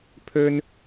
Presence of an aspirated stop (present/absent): present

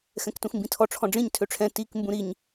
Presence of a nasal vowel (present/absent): present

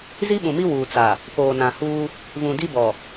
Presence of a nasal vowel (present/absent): present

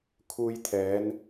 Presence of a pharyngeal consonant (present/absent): absent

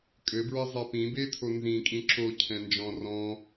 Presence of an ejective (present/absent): present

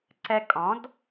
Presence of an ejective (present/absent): present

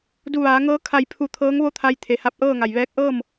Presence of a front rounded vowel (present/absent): absent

